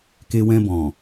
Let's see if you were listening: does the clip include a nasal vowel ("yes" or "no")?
yes